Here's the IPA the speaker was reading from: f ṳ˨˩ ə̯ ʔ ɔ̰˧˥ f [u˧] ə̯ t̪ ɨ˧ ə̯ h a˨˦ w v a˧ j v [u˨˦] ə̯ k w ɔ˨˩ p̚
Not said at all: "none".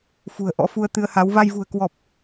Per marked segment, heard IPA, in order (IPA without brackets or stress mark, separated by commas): u˧, ṳ˨˩